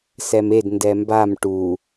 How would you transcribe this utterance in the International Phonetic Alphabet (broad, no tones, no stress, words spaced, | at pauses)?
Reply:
sɛmed ndɛmbam ʈu